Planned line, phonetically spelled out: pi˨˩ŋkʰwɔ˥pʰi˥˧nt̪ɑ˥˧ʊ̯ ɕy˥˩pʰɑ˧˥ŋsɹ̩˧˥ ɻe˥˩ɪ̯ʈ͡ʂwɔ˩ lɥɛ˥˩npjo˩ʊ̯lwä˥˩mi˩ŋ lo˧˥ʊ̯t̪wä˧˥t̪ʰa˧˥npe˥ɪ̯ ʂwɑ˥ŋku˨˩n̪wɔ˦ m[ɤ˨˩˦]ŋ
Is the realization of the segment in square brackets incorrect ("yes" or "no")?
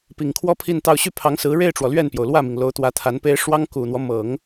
no